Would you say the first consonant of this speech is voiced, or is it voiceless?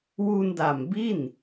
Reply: voiced